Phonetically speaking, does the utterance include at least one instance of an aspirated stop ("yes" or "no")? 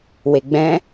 no